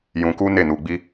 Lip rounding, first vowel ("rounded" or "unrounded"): rounded